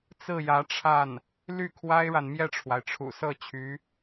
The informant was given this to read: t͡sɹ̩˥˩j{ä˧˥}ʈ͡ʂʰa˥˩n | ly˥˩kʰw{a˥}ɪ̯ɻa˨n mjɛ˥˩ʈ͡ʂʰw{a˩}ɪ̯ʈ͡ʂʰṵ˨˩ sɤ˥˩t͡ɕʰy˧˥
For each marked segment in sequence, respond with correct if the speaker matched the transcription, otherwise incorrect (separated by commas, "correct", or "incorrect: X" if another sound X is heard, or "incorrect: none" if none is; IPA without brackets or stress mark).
correct, correct, correct